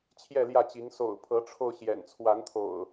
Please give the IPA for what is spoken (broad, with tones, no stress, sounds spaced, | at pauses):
t͡ɕʰ j ɛ˥˨ l j ä˥˨ t͡ɕ i˨˦ ŋ s o̰˨˩ ʊ̯ pʰ ɤ˨˦ ʈ͡ʂʰ o˧ ʊ̯ ɕ j ɛ̰˨˩ n t͡sʰ w a˨˦ n t̪ʰ o̰˨˩ ʊ̯